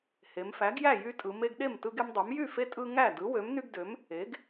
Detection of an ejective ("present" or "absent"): present